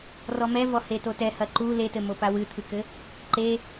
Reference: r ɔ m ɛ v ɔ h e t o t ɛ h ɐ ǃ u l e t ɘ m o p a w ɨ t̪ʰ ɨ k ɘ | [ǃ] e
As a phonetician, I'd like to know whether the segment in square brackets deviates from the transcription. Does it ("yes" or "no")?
no